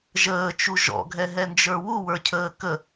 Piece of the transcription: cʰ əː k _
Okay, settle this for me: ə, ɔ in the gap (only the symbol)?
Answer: ə